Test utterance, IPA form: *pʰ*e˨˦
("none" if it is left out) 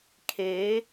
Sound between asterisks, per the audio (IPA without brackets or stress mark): kʰ